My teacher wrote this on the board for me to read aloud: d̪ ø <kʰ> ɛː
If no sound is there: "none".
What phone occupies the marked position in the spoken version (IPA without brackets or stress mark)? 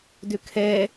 kʰ